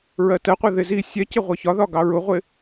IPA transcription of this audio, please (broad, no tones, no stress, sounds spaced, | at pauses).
ɹ ɜ t ɜ qʷ ɛ ð ɪ z i sʲ ɛ c ɪ ʁʷ ɜ ç ɒ ð ɒ ɡ ɑ ɹ ʊ ʁʷ ɪ